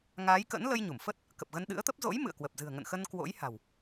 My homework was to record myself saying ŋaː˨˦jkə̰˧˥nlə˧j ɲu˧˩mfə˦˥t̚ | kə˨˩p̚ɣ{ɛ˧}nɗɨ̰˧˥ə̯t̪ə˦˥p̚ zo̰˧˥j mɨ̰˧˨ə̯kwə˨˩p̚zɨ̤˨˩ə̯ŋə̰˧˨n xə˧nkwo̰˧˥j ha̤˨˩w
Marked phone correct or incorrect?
incorrect